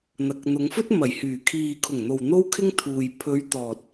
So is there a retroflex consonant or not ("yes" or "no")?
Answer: no